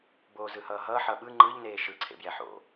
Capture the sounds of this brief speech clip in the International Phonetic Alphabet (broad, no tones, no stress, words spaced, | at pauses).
boːzɯhʌːɦʌː ħʌɓɯ ŋ͡ǃɯʎ neːʃɯ ǀʰḛbjɛħo̰